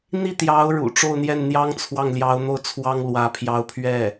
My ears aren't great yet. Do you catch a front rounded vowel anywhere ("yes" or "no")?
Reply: no